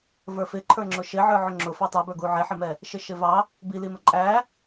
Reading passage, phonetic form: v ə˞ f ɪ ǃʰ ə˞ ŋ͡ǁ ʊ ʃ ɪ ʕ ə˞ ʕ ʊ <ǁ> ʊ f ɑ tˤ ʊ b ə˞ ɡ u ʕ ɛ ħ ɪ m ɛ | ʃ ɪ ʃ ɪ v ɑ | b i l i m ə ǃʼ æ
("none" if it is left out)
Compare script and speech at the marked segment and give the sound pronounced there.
ŋ͡ǁ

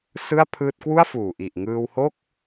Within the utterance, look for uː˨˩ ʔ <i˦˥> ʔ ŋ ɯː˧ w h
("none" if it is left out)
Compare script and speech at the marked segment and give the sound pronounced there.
i˨˩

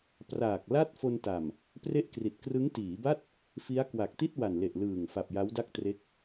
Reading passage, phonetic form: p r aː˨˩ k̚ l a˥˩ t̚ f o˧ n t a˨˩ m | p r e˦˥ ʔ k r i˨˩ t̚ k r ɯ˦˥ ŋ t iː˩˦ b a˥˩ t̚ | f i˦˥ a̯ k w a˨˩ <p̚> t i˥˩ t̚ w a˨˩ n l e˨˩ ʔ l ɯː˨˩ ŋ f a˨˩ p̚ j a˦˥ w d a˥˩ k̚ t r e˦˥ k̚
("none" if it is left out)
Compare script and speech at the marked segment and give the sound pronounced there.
k̚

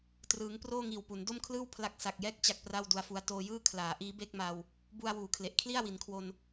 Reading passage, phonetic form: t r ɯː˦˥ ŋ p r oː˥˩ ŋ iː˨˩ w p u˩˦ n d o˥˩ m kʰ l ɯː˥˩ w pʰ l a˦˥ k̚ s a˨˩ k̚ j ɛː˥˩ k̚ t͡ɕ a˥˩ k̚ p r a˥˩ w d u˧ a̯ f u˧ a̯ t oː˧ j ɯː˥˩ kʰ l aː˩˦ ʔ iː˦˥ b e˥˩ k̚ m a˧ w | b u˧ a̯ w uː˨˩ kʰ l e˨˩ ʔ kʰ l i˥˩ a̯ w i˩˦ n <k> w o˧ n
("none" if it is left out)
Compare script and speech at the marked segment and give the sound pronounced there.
kʰ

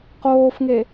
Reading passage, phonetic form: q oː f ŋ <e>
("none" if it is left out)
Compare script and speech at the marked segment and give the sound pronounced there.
e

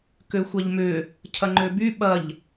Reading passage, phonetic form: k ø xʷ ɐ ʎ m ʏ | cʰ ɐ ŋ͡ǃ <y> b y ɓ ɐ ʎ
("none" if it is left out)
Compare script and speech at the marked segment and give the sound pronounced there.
ø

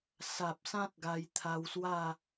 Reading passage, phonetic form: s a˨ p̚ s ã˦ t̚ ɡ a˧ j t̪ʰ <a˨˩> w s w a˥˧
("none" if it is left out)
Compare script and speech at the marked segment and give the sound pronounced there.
a˧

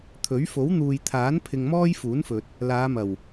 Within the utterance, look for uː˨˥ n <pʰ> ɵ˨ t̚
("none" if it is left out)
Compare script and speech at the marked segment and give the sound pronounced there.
f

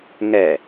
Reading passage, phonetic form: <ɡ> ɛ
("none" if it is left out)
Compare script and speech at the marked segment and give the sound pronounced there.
ŋ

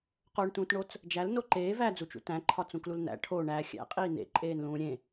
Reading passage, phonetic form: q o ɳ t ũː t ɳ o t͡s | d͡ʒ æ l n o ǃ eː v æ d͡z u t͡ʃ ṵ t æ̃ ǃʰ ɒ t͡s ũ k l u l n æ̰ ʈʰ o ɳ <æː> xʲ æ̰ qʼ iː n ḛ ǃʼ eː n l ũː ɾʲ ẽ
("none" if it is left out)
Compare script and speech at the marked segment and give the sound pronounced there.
æː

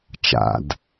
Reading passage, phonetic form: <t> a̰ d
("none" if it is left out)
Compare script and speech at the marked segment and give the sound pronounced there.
t͡ʃ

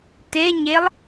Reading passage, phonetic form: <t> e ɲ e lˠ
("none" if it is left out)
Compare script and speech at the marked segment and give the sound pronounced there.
t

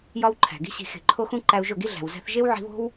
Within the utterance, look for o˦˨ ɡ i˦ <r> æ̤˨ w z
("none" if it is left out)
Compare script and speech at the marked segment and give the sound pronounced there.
ɮ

